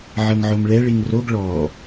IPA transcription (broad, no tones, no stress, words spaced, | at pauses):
ʕɤŋʕomɭɛ ɭiŋroɡ ɭɔ